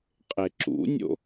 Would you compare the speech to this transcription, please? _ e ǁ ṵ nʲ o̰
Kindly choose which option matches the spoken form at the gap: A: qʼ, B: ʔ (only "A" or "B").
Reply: A